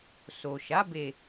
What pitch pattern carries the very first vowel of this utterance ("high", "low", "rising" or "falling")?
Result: low